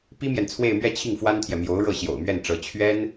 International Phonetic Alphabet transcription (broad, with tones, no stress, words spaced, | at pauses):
pi˥mjɛ˨nt͡sʰwe˥˧ɪ̯mɥɛ˥˧ t͡ɕʰi˥˩ŋfwa˥nt̪ʰjɛ˨ mjo˧˥ʊ̯ɻɤ˥˩ ɕjo̰˨˩ʊ̯mɥɛ˥˩nʈ͡ʂɤ˧˥ t͡ɕʰɥɛ˥n